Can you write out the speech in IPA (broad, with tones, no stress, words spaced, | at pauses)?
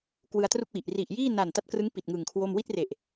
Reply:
kwɯ˧a̯tru˥˩k̚wi˨˩ʔ ri˨˩ʔjiː˥˩ na˨˩nta˦˥t̚krɯ˦˥ŋ pi˨˩t̚ŋɯ˨˩ŋ kʰwo˥˩m wi˥˩t̚re˨˩ʔ